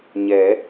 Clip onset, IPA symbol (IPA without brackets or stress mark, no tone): ɲ